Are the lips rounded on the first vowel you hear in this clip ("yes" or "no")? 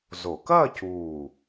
yes